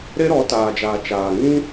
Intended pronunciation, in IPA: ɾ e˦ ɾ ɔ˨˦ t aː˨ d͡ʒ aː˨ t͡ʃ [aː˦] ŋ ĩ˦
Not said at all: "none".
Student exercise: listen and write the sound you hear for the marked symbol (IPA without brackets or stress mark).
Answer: aː˨